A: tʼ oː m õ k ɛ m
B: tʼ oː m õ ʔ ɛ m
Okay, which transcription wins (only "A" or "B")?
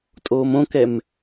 A